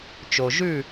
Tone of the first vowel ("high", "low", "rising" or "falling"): low